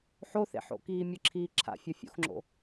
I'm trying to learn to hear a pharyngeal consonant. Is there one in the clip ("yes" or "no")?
yes